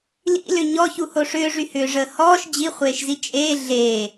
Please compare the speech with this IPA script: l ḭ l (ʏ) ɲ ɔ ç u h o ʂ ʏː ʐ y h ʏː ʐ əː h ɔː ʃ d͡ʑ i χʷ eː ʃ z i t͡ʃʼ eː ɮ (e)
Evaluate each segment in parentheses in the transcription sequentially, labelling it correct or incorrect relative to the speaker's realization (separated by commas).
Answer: correct, incorrect